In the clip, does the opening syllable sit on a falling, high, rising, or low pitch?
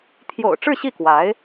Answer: low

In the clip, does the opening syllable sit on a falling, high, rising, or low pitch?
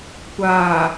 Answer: low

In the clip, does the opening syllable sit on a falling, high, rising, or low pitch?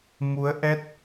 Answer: rising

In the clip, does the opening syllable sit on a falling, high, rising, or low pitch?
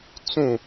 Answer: falling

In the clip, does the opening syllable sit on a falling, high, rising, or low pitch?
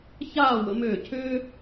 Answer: falling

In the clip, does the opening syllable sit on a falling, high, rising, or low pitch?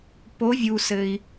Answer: rising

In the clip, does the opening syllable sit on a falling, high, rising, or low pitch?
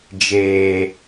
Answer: low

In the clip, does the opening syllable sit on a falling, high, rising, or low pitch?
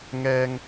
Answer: high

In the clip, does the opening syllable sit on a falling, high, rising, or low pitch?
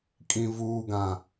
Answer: low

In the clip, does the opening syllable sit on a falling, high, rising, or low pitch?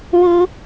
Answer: high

